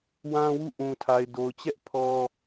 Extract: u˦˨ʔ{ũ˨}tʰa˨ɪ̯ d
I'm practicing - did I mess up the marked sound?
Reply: no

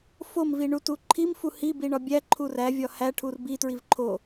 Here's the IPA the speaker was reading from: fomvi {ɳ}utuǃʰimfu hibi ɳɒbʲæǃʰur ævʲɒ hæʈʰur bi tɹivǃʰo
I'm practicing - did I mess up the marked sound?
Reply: no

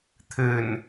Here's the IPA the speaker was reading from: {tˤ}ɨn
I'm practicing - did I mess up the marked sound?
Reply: yes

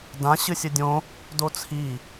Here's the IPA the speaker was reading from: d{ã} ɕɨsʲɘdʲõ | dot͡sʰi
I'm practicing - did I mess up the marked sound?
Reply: no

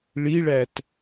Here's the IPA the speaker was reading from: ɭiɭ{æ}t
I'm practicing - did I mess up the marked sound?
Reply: no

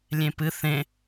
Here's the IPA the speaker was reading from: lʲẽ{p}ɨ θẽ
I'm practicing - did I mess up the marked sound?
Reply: no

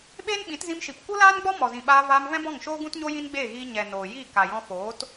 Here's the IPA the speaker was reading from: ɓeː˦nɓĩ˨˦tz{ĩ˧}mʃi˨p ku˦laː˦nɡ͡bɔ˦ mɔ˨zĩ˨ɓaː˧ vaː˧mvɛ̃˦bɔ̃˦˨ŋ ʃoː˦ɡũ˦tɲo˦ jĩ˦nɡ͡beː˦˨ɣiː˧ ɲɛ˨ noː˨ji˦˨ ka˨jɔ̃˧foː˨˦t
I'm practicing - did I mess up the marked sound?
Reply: no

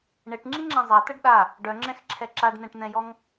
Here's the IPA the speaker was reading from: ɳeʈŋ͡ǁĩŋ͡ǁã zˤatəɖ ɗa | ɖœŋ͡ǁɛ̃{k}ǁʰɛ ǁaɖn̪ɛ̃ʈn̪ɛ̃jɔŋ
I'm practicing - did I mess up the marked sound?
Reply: yes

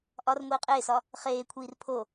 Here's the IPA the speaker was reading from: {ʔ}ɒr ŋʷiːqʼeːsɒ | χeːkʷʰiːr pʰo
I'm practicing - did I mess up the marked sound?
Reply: no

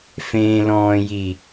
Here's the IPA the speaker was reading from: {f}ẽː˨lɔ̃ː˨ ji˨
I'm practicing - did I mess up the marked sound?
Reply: no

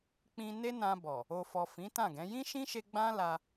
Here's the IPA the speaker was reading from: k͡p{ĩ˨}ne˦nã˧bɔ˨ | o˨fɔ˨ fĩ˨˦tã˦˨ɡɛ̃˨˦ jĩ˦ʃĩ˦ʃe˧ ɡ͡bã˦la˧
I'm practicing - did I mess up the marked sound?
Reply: yes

